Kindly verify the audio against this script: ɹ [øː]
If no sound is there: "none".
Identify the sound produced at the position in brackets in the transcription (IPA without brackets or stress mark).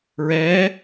ɛː